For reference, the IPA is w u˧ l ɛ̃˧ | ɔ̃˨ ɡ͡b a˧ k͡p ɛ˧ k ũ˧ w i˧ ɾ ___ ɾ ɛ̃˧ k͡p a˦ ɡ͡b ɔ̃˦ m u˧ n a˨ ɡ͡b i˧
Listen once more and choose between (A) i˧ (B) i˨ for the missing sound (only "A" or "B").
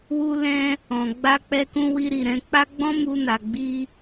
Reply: B